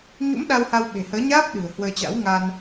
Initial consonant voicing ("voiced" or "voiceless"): voiced